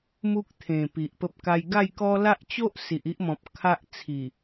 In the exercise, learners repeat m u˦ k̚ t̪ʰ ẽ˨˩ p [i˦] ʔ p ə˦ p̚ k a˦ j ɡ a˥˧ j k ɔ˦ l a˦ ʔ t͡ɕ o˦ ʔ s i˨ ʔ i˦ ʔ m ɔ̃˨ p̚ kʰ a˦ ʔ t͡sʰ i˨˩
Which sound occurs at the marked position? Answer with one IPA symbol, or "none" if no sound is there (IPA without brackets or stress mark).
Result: i˨